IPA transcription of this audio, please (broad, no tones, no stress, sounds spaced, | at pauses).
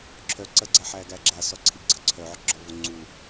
ǁʰ œ ǀ ɐ ɡ͡ǀ a ħ æ ɡ æ ɡ͡ǁ a s ɔ ǀʰ i ɡ͡ǀ ə ǀʰ œ ʕ ɔ ɡ͡ǁ ɔ v o ŋ͡ǀ u